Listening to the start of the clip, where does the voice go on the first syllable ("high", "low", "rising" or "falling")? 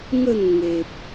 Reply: falling